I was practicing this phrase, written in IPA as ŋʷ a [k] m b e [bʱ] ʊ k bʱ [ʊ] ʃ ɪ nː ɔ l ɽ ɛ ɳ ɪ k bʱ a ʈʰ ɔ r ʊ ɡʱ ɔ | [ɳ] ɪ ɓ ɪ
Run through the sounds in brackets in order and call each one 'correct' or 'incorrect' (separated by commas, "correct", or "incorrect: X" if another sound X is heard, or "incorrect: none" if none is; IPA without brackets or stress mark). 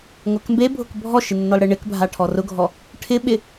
correct, correct, incorrect: ɔ, incorrect: ʈʰ